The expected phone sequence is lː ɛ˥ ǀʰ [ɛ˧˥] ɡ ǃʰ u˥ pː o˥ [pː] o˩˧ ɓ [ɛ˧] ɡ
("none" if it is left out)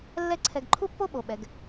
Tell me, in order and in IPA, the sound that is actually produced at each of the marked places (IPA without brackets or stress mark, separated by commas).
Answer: ɛ˧, ɓ, ɛ˩˧